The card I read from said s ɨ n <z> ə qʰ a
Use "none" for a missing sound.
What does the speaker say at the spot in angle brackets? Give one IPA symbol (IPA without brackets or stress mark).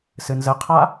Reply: z